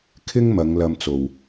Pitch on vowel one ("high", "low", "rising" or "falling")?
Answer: high